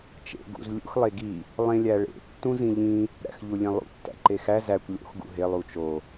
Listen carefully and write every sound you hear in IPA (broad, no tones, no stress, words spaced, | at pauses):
t͡ʃḛ ɡṵz lʲṵx lˠeɡi | lˠẽlʲæɭḛ tːũzĩʎĩ | ɾæ̰xʎulʲẽlˠṵ tːæ̰ǃexæ zækʷ lʲo̰x ɡṵɦe lˠut͡ʃo